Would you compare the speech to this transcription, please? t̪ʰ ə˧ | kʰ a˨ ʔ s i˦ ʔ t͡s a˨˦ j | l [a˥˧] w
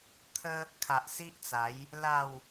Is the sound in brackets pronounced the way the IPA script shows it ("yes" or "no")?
yes